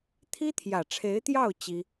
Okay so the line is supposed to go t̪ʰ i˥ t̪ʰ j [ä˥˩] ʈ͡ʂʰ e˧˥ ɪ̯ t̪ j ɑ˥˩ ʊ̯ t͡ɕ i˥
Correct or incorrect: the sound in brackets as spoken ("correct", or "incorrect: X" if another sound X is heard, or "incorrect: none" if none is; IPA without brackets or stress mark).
incorrect: ä˨˩